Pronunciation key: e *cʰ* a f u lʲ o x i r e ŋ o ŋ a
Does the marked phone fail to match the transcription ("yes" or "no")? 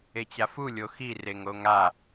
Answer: yes